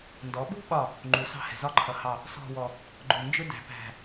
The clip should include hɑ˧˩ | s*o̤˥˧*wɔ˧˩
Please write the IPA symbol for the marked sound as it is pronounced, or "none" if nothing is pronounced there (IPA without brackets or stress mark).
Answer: ɔ̤˥˧